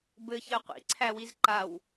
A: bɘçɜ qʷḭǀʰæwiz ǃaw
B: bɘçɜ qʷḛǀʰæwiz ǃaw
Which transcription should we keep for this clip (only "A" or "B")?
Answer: A